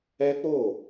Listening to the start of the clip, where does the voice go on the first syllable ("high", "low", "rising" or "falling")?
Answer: high